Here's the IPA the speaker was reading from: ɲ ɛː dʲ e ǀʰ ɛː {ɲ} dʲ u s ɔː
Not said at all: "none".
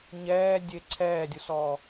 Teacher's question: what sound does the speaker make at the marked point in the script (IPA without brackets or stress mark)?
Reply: none